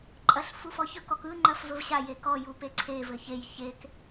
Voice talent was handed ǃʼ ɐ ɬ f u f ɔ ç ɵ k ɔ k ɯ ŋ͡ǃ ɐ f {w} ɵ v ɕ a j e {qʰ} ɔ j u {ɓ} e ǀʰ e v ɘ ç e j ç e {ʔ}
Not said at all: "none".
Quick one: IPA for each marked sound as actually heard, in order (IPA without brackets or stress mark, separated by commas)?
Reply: v, k, p, k